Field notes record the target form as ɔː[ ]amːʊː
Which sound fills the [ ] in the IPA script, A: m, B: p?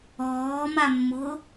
A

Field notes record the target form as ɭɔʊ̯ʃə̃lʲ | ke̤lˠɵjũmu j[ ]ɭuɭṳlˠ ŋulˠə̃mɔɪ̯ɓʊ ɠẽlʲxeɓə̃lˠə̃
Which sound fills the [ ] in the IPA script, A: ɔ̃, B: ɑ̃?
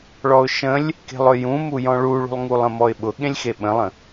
A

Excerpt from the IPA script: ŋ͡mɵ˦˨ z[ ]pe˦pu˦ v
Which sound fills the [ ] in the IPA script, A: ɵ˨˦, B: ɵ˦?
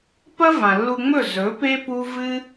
A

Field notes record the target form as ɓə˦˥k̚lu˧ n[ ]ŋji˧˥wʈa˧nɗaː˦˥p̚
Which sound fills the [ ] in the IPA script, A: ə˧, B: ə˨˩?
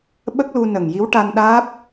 B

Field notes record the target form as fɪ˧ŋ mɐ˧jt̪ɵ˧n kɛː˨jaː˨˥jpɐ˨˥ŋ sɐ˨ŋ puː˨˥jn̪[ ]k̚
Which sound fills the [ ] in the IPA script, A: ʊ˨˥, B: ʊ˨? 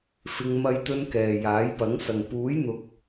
B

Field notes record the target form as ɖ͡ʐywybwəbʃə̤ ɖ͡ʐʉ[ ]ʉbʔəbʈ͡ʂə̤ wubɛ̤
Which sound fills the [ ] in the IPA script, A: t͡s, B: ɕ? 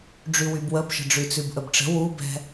A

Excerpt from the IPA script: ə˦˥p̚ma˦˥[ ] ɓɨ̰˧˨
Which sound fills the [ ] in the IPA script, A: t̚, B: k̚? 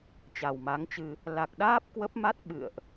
A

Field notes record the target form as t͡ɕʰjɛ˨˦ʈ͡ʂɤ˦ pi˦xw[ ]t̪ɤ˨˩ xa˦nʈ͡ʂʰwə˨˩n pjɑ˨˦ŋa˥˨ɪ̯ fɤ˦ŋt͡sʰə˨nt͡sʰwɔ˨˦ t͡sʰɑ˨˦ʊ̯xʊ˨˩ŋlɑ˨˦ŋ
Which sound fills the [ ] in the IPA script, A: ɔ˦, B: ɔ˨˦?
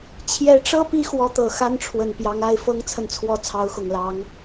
B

